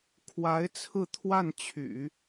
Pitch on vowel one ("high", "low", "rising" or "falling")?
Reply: rising